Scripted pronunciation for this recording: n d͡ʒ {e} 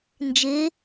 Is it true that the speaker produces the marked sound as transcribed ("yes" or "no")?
yes